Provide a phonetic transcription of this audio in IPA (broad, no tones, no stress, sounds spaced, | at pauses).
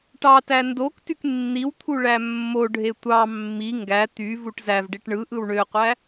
ʈ ɑ t æ n d o k t y k nː i w t̪ʰ u ɭ æ mː o ɖʱ e tʷ ɑ mː i ŋ ɡ æ t̪ y v u ʈ z æ v ɖ i ʈ ɳ ɯ ʔ ɯ w ɳ ø qʷ æ